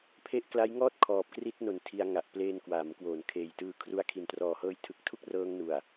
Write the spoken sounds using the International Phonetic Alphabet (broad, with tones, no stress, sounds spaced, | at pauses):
pʰ e˦˥ ʔ k l a˦˥ j ŋ ɔː˥˩ t̚ kʰ ɔː˨˩ p̚ k r i˦˥ t̚ n o˨˩ n tʰ i˧ a̯ ŋ a˨˩ ʔ p l eː˧ n k w aː˩˦ m k w oː˩˦ n kʰ eː˨˩ j t ɯː˧ kʰ r u˦˥ a̯ kʰ i˨˩ n t r ɔː˨˩ h ɤː˦˥ j tʰ ɯ˨˩ k̚ tʰ u˥˩ k̚ r ɤː˧ ŋ n u˨˩ a̯